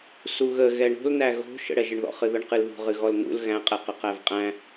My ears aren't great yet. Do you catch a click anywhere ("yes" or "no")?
no